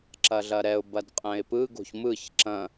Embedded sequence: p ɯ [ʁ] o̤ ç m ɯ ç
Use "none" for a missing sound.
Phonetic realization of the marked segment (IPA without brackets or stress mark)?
ɡ